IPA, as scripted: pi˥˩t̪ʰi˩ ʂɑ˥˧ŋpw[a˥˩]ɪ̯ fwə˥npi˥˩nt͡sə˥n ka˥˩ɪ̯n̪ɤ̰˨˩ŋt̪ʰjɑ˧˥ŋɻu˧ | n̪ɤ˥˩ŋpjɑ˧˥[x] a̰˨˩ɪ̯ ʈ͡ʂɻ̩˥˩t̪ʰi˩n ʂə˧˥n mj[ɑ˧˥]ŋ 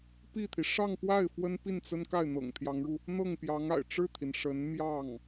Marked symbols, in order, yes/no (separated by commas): yes, no, no